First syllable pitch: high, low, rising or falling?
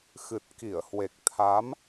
low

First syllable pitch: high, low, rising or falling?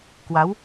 rising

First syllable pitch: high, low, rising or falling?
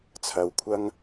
low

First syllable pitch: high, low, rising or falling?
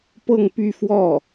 falling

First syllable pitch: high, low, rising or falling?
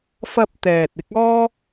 high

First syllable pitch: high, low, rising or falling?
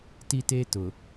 high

